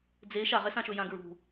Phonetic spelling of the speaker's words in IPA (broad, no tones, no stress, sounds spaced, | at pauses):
d͡z e ʃ a ʁ ɛ s ã ʃ ɵ j ã ɡ ɹ ṳ